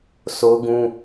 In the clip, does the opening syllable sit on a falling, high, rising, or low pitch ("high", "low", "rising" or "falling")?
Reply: high